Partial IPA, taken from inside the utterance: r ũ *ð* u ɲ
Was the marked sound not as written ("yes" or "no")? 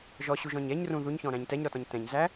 no